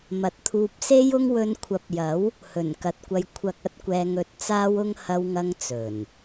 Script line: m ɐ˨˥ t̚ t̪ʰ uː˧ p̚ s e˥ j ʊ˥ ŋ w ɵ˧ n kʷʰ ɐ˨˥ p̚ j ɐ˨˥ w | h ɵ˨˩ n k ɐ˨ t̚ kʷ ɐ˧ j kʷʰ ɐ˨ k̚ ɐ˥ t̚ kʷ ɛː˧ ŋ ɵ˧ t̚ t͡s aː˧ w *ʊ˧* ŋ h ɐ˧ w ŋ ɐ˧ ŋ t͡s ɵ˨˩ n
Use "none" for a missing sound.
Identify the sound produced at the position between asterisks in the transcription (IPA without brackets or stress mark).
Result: ʊ˧